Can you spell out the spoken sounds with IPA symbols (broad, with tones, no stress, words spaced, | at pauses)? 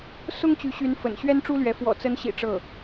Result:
sʊ˥ŋt͡ɕy˧˥ɕy˧˥nfə̰˨˩n ɕɥɛ˥nʈ͡ʂu˥lɥɛ˧˥ fwɔ̰˨˩t͡sə˧˥nɕḭ˨˩ ʈ͡ʂɤ˥˩